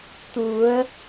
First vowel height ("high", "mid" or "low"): high